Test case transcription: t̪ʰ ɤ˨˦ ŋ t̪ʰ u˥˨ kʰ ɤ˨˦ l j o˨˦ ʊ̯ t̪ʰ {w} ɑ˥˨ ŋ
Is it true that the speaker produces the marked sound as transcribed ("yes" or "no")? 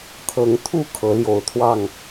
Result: yes